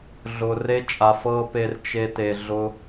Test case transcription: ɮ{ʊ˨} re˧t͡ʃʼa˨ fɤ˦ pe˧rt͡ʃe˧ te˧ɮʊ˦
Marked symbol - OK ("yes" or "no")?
yes